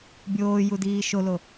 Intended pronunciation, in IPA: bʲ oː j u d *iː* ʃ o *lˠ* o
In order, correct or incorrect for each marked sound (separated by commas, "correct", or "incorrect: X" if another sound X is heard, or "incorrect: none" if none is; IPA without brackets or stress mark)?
correct, incorrect: l